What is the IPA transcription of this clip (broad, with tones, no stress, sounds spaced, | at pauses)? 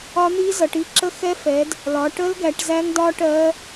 ɒ˦˥ n̪ i˦˥ z ʌ˨˦ ʈ i˦˥ ǁ ə˦˥ x ɛ˦˥ f ɛ˨˦ d | l ɒ˨˦ ʈ ə˦˥ l ɡ æ˨˦ ʈ z æ˦˥ ŋ d ɒ˦˥ ʈ ɜ˦˥